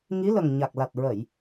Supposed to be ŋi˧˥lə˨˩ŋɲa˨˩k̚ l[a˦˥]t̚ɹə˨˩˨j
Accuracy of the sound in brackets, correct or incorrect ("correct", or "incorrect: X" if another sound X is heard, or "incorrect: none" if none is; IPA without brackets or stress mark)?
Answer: incorrect: a˨˩